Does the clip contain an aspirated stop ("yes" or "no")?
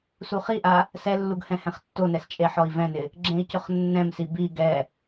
no